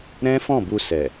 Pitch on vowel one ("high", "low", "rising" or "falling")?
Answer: high